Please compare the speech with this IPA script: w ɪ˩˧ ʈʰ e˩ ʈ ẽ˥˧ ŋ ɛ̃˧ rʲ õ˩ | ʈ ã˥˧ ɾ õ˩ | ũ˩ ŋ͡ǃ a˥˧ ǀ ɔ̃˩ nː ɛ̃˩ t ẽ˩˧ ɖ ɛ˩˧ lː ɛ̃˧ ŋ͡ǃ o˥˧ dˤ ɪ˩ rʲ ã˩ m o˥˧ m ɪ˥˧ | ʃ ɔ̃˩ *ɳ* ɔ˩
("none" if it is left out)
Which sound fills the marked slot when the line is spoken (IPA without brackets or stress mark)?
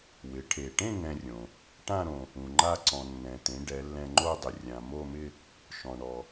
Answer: ɳ